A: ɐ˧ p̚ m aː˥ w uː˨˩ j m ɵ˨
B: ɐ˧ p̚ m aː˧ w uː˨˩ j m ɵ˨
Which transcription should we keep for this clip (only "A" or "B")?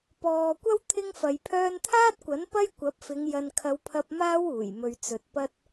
A